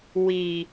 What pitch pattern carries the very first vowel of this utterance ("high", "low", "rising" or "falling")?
low